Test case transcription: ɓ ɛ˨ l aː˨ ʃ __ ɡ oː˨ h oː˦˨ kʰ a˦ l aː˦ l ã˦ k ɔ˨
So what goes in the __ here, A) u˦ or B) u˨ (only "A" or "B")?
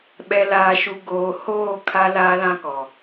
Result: B